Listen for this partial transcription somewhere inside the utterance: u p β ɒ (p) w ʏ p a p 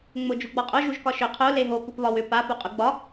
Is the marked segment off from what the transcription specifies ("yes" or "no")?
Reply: yes